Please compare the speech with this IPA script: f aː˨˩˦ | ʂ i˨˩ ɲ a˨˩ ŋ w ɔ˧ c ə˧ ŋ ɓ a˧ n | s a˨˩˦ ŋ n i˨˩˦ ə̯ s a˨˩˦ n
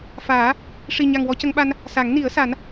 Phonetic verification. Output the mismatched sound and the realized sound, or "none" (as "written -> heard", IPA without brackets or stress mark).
none